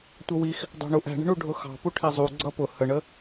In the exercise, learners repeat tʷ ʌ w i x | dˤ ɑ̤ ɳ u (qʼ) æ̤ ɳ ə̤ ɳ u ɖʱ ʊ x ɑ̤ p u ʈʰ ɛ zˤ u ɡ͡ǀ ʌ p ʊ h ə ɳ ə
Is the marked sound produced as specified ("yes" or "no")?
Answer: no